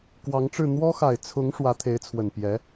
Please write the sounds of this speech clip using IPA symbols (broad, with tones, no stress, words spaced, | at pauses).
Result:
kwɑ˧˥ŋʈ͡ʂɻ̩˥˩ n̪wɔ˥xa˨˩ɪ̯t͡sʰʊ˧˥ŋ ʂwä˧˥t̪ʰe˧˥ɪ̯t͡sʰwə˨˩n pjɛ˧˥